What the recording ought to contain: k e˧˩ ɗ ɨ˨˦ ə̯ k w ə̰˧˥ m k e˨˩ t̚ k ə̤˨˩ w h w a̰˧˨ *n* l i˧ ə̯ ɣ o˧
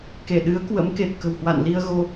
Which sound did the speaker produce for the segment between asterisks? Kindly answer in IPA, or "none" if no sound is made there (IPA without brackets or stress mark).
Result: n